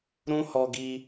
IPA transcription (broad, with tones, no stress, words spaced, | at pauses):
ɾũ˦ hɔ˧ɡi˧